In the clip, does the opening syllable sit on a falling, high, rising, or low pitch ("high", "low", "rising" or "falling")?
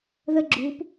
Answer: high